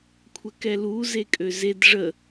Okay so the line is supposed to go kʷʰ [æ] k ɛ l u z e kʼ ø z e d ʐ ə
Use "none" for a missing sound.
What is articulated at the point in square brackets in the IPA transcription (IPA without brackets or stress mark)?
ə